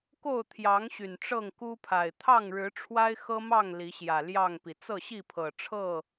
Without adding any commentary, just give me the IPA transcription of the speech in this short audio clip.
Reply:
k o˥˨ ʊ̯ t̪ʰ j ɑ˨˦ ŋ ɕ y˨˩ n ʈ͡ʂ ɤ˥˨ ŋ k u˦ pʰ a˨˩ ɪ̯ t̪ʰ ɑ˥˨ ŋ ɻ ɻ̩˨˦ ʈ͡ʂʰ w a˦ ɪ̯ x ɤ˦ m ɑ˥˨ ŋ l i˨˦ ɕ j ä˨˩ l j ɑ˥˨ ŋ p i˩ t͡s ɤ˥˨ ɕ i˥˨ pʰ ɤ˨˩ ʈ͡ʂʰ ɤ˥˨

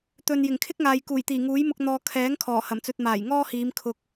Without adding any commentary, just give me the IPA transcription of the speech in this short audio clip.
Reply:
t̪ ɵ˨ n j ɪ˨˩ ŋ kʰ ɪ˥ k̚ ŋ aː˨ j k uː˨˩ j t̪ iː˨˩ ŋ uː˨˥ j m ʊ˧ k̚ n̪ ɔː˧ kʰ ɛː˨˥ ŋ kʰ ɔː˨˩ h ɐ˨˩ m t͡s ɵ˧ t̚ m aː˨˩ j ŋ ɔː˥ h iː˨˧ m kʰ ʊ˧ k̚

